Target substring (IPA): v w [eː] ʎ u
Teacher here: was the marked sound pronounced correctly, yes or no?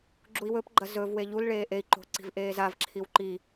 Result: no